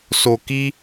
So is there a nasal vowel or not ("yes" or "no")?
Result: no